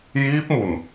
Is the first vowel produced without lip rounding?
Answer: yes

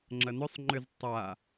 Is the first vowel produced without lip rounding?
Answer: yes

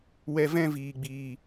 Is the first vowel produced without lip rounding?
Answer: yes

